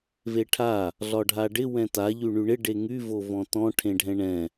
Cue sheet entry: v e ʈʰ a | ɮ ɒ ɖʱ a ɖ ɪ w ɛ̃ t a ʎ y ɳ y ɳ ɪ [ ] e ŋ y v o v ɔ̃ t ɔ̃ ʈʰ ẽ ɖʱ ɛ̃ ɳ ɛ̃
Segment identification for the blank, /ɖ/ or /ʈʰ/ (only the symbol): ɖ